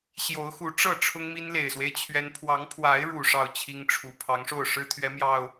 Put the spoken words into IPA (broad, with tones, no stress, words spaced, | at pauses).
ɕjo˨˦ʊ̯xu˨˦ʈ͡ʂɤ˥˨ ʈ͡ʂʰʊ˦ŋmi˦n le˨˩ɪ̯swe˦ɪ̯ t͡ɕʰɥɛ˦n pʰwɑ˨˦ŋpʰwa˨˦ɪ̯ɻu˨˩ ʂɑ˥˨ʊ̯t͡ɕʰi˦ŋʈ͡ʂʰu˨˩ pʰɑ˨˦ŋʂo˥˨ʊ̯ʂɻ̩˦ t̪ʰɥɛ˨˦mjɑ˨˩ʊ̯